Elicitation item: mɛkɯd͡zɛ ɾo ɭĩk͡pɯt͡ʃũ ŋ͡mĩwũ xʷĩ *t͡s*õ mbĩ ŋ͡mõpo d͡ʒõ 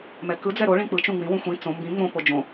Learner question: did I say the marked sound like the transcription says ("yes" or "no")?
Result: yes